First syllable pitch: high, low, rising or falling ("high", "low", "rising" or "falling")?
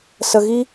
low